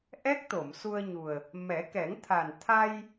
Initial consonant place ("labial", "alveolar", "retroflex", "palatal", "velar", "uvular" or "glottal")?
glottal